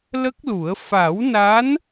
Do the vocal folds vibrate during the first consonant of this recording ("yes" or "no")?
yes